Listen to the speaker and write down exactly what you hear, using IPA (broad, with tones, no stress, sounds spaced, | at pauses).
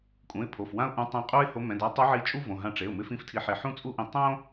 kʼ ũ˩˧˩ ɪ̯ pʰ o˩˧˩ f w ã˥ ʊ̯ ʔ ũ˧˥ tˤ ɛ̃˧˥ qʼ u˥ ɪ̯ h o˧˥ m ɛ̃˩˧˩ d a˧˥ tˤ o˧˥ ʕ i˧˥ t͡ʃʼ u˥ v õ˩˧˩ ɦ ã˧ ʈ͡ʂ e˩˧˩ ʊ̯ m ɪ˥ f ĩ˥ f tʰ i˧˥ ħ e˧ ħ ũ˥ t͡sʼ u˥ ʔ ĩ˧ tˤ õ˥